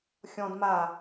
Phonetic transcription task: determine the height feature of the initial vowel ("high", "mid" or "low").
mid